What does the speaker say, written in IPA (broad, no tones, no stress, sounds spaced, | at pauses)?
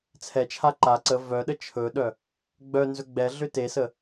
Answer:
t͡sʰ ɛ t͡ʃʰ a ǃ a ǀ ə v œ ɗ ə t͡ʃʰ ɵ ɗ œ | ɡ͡b œ n z ɵ ɡ͡b ɛ ɮ ʏ t e s ə